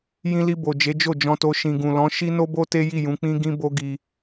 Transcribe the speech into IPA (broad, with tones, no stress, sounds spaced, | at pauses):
j ĩ˧ l i˧ b o˨ d͡ʒ e˨˦ d͡ʒ o˦˨ d͡ʒ ɔ̃˧ t o˧ ʃ ĩ˨ ɡ ũ˨ l ɔ̃˨˦ ʃ i˦ n o˦ b o˦ t e˦ j i˦˨ j ũ˨˦ k͡p ĩ˦ ɡ ĩ˦ b o˦ ɡ i˧